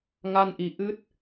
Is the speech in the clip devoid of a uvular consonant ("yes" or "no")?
yes